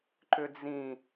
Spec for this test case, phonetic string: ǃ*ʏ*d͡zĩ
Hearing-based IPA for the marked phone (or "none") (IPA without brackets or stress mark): ʏ